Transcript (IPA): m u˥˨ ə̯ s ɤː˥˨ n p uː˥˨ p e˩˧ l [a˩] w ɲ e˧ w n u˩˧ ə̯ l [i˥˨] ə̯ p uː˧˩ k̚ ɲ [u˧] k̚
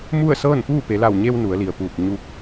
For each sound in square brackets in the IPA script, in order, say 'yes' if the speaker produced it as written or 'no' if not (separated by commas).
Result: no, no, yes